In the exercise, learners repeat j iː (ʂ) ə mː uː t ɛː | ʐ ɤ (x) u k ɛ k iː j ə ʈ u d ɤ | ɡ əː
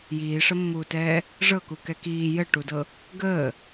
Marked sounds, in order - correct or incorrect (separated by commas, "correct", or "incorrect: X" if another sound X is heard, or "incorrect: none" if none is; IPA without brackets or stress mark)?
correct, incorrect: k